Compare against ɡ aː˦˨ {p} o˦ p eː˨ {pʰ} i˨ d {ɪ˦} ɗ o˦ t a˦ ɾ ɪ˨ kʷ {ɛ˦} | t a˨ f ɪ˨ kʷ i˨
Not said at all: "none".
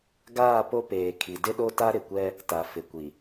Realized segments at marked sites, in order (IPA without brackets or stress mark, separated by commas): p, kʰ, ɪ˦, ɛ˦